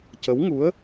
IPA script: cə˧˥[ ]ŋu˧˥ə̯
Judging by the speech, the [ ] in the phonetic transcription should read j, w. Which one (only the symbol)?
w